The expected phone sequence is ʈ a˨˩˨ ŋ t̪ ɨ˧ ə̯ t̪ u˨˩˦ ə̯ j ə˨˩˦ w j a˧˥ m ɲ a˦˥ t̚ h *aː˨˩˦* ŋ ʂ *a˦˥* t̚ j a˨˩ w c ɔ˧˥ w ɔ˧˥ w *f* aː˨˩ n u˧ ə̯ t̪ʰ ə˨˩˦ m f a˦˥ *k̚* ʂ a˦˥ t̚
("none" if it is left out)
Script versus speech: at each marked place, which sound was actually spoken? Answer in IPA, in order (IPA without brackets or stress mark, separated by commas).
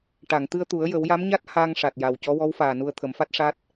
aː˧, a˨˩, f, t̚